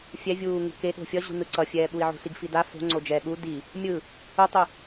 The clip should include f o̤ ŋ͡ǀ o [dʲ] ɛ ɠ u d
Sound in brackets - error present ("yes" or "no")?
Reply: yes